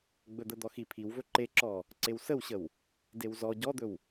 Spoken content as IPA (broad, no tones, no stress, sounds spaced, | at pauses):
ɡ͡b ɵ d̪ ə d̪ ɔ x i pʰ i w v ɵ ǃ e ǁ ɔ | ǀ e w s ə w ɕ ə w | d e w z ɔ ɟ ɔ d̪ ɵ w